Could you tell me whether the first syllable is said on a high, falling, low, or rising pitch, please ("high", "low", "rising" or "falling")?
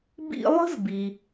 high